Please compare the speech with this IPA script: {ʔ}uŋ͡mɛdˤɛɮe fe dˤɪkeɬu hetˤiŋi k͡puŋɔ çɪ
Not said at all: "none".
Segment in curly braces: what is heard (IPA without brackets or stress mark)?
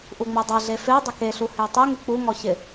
ʔ